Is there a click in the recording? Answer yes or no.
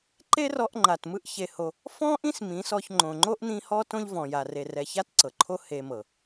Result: yes